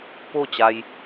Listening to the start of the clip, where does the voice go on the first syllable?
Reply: falling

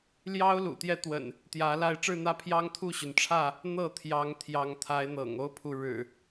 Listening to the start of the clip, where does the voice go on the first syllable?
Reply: high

